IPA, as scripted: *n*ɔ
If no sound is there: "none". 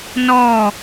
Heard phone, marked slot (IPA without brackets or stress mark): n